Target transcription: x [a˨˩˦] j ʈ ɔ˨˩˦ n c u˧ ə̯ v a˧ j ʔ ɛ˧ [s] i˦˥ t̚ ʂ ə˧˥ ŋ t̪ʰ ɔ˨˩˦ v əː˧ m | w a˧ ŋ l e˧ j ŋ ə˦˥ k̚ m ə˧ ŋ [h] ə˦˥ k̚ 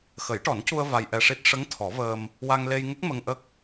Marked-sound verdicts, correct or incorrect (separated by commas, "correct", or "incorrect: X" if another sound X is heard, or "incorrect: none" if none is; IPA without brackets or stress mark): incorrect: ə˨˩˦, incorrect: ʂ, incorrect: ʔ